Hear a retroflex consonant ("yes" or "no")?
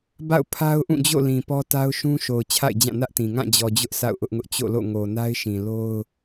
no